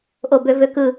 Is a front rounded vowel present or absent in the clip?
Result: present